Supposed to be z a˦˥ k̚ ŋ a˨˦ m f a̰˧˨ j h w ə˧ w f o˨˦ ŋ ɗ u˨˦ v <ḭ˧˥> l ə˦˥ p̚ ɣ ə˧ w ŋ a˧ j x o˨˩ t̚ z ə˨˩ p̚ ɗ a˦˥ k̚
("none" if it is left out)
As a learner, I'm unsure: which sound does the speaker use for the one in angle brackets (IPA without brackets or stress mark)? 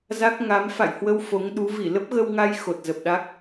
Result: i˧˩